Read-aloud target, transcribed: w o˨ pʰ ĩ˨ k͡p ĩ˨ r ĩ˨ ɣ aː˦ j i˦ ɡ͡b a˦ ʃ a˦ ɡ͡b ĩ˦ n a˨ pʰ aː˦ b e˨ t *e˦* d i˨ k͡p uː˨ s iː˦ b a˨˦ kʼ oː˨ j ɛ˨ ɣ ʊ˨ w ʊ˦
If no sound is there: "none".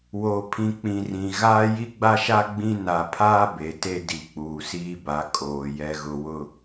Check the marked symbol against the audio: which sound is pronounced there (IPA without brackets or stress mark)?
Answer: e˦